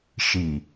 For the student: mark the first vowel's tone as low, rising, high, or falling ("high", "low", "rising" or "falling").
low